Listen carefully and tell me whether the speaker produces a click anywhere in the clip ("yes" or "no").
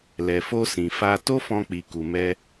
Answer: no